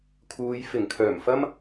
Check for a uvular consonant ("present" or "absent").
absent